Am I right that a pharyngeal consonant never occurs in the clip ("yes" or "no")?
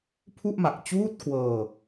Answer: yes